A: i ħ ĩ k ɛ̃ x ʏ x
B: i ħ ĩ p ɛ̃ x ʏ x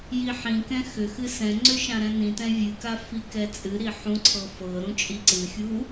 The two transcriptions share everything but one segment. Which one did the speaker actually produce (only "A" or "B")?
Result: A